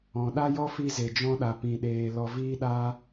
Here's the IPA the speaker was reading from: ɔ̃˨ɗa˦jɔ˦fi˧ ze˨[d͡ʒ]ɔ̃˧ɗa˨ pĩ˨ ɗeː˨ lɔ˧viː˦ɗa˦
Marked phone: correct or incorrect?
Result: correct